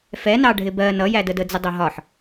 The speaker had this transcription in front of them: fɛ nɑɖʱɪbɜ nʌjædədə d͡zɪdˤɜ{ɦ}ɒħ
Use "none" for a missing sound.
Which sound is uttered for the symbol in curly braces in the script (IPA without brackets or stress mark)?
ɦ